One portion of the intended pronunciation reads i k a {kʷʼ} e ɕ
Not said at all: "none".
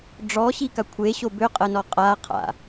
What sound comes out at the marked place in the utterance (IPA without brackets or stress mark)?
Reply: kʷʰ